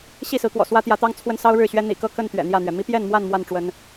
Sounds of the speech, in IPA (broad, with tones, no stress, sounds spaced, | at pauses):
ɕ i˥˨ s ɹ̩˨˦ k w ɔ̰˨˩ s w ä˦ t̪ j ä˨˦ t̪ ɑ˦ ŋ t͡sʰ w ə˦ n s ɑ˦ ʊ̯ ɻ ɻ̩˥˨ ɕ ɥ ɛ˦ n̪ ḭ˨˩ k ɤ˥˨ k ə˥˨ n t̪ ɥ ɛ̰˨˩ n̪ j ä˥˨ n̪ ɥ ɛ˩ m i˦ p j ɛ˥˨ n m w a˥˨ n m w a˥˨ n ʈ͡ʂ w ə˨˦ n